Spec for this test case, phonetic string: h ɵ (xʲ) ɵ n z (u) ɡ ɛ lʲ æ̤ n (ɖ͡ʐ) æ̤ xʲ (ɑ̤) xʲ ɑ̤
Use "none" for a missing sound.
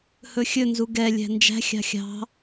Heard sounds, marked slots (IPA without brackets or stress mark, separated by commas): xʲ, u, d͡ʒ, ɑ̤